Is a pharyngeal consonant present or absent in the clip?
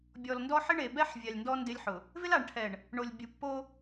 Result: present